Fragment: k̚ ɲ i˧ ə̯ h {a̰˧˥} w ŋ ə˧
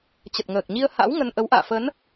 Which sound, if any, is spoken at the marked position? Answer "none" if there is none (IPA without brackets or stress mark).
a̰˧˥